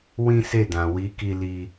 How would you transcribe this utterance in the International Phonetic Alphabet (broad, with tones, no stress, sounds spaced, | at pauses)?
w ĩ˦ s e˦˨ d ã˨ w i˨˦ k i˧ l i˧